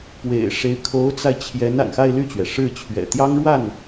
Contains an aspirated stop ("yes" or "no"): yes